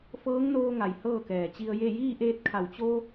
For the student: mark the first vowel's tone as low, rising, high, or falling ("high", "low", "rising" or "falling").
rising